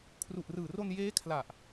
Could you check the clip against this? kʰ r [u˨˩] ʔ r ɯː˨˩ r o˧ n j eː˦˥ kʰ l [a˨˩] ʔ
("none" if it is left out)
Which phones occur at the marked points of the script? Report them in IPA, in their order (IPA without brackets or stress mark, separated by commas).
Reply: u˨˩, a˨˩